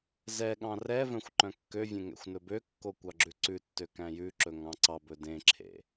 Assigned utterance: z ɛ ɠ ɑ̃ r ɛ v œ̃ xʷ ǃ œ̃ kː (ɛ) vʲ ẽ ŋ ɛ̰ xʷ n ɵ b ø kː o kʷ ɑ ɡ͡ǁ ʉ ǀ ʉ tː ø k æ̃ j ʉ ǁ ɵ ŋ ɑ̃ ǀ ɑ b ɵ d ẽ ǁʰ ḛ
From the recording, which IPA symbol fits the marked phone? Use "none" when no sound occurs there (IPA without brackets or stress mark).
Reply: ø